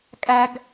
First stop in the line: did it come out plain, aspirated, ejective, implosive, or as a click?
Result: ejective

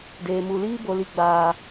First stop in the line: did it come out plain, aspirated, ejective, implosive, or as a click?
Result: plain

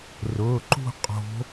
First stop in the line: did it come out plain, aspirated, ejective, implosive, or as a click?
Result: click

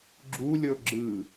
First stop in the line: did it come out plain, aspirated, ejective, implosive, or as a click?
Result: click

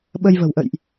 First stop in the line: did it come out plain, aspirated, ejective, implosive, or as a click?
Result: implosive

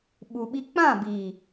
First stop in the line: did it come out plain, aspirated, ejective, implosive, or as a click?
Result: implosive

